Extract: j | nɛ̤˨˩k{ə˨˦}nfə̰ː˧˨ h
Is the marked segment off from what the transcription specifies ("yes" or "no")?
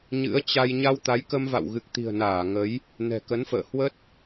no